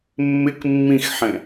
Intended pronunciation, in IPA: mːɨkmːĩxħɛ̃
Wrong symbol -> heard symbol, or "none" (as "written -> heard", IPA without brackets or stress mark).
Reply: ɨ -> ɪ